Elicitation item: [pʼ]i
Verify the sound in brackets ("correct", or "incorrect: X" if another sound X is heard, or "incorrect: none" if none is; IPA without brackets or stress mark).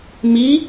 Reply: incorrect: m